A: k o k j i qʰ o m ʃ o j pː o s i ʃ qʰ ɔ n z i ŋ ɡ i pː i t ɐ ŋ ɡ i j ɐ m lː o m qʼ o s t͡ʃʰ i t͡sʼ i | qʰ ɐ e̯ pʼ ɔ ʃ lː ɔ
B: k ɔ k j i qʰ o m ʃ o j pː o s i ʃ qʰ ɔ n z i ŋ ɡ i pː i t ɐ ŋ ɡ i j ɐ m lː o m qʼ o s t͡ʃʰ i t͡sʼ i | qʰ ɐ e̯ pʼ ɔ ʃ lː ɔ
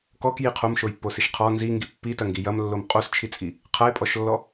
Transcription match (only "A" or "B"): B